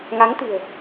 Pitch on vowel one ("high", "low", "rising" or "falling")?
rising